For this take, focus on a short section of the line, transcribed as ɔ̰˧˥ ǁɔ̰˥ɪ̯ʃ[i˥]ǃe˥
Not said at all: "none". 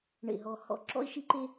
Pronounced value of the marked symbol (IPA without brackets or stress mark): i˥